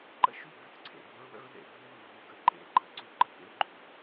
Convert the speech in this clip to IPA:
ǃ ə̰˦ ʃ u˦˨ b ʉ˦˨ t ǀʰ ḛ˨ b ʉ˦ ɹ w ə̰˦ ɹ ð ḛ˨ b ʉ˦ w ʉ˨ v u˨ ɡ ə˨ ǃ ḛ˦ ǃ ə˨ ǀ ʉ˦ ǃ ə˨ k ḛ˦ ɹ ɡ͡ǃ ʉ˨

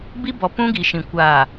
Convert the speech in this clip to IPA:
b i˦ b ɔ˨ p ũ˦ ɡ i˨ ʃ ĩ˨ kʷ aː˨

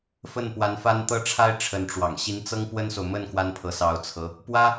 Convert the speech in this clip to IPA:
f ə˥˩ n p w a˧˥ n f a˥ n t̪ ɤ˥˩ ʈ͡ʂʰ a˥ ɪ̯ ʈ͡ʂʰ ə˧˥ n ʈ͡ʂ w ɑ̰˨˩ ŋ ɕ i˧˥ n t͡s ɤ˥ ŋ p w ə˥ n s o˨ ʊ̯ m ə˥˩ n k w a˥ n pʰ ɤ˧˥ s ɑ˧˥ ʊ̯ t͡sʰ ɤ˧˥ | p w ä˥

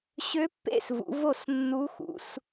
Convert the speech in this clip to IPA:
ɕ ø˧˥ pː ḛ˦˨ s v ṵ˩˧ v o˦˨ s nː u˧˥ x ṵ˩˧ s

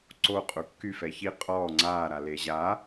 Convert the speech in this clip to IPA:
ǀ o qʼ u kː y f ɛ ç i qʼ ɔː ŋ͡ǀ aː ɾ a l e ʑ a

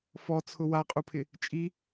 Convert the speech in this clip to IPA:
f ɔ t͡sʰ ʊ w a qʼ u pʰ ɪ | t͡ʃʼ i

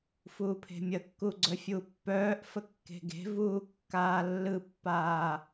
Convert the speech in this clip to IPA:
f uː pʰ e̤ mʲ ə kː u ɡ͡ǀ œ fʲ u pː œː ʔ f ə kː e̤ ɡ e̤ v uː kː aː lː ɯ pː aː

